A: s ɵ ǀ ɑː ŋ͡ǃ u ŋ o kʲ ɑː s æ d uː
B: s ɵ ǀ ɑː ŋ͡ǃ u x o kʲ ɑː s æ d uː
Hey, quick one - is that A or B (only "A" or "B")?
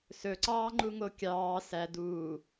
A